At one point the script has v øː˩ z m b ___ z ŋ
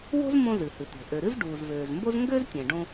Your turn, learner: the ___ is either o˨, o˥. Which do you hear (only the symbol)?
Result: o˥